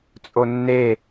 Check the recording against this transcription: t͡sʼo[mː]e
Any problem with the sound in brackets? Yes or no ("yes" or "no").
yes